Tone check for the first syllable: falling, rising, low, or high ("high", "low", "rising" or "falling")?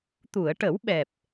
low